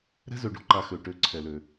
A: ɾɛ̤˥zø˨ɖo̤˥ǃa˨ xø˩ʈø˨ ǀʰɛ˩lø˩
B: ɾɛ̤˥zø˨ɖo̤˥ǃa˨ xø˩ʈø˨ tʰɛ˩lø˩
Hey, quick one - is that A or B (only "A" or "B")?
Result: A